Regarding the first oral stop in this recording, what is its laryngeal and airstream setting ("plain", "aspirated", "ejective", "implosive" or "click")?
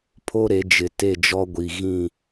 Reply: aspirated